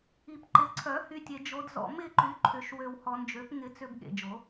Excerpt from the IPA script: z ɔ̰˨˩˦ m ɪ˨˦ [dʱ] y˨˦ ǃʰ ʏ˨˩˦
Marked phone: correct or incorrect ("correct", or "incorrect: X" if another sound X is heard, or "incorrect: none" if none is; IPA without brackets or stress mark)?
incorrect: ǃ